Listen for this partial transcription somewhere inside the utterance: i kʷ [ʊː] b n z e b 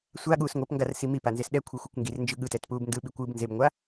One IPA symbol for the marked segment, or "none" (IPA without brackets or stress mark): ɯː